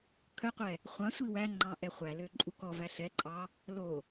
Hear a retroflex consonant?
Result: no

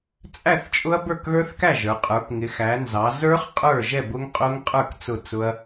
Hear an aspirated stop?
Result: no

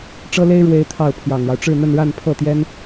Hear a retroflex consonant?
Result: yes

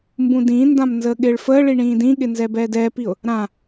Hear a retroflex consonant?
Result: yes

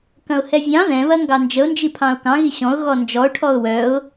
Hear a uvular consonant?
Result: no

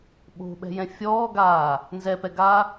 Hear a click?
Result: no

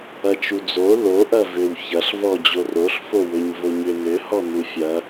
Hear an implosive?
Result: no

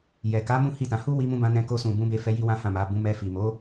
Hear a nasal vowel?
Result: yes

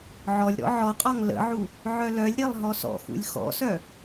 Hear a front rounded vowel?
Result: yes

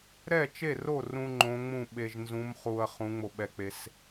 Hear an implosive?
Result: yes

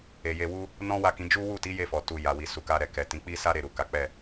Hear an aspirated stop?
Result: no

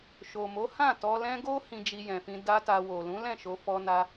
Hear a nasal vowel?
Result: yes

